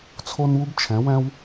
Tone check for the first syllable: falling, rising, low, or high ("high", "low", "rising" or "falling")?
high